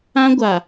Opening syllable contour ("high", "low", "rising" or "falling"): high